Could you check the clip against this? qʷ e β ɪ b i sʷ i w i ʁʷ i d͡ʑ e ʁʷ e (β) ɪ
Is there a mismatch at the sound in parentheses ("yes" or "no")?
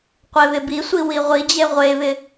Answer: no